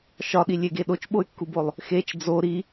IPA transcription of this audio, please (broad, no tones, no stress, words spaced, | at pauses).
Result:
ʃɒɗilʲeɡe ɗot͡ʃɓoy̯kːubolˠ | xet͡ʃ d͡zo ɾi